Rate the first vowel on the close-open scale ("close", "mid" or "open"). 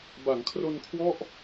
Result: open